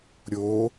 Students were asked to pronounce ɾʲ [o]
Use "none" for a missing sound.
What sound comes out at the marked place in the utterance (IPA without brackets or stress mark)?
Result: o